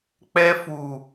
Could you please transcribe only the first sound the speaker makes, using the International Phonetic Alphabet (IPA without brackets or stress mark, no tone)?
k͡p